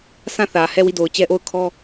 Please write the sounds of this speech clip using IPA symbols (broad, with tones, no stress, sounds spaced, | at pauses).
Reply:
sʰ ã˦˨ θ ä˨ h ɛ˦˨ w i˦˨ d o˨ ʊ̯ t͡ɕ ɛ˦ ʔ o˦˨ ʊ̯ kʰ ɔ˦